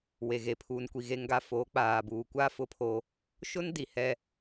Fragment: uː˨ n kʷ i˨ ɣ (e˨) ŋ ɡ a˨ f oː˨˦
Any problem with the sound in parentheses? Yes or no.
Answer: no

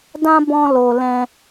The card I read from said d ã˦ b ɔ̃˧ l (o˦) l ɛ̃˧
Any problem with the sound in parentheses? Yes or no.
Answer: yes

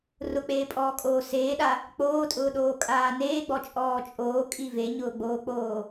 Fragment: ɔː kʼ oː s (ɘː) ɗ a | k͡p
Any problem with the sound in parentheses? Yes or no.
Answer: yes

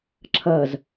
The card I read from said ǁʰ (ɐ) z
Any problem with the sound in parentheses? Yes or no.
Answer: no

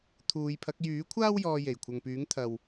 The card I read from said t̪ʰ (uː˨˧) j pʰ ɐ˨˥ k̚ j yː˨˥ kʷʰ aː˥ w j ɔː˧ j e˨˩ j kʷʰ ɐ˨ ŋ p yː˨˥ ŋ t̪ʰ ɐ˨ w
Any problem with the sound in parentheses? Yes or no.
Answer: no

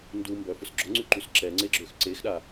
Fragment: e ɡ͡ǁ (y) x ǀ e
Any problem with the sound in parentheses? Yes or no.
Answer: yes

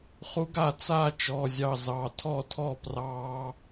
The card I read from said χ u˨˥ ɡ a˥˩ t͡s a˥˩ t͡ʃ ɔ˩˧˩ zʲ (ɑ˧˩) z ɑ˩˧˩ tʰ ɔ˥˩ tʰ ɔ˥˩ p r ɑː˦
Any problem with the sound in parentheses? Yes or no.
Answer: no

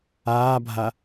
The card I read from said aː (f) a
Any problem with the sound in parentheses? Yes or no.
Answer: yes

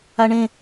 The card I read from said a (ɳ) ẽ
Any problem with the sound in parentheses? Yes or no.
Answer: no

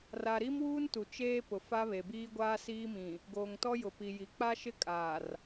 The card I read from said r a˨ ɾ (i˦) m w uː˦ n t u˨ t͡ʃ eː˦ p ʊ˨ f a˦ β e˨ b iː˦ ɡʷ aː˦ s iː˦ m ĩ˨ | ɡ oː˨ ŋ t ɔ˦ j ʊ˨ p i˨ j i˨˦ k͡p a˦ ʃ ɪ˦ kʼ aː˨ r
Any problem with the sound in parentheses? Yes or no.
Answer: no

